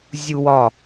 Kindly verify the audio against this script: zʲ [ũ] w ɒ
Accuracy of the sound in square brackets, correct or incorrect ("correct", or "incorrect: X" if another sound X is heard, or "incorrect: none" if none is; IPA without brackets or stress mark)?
incorrect: u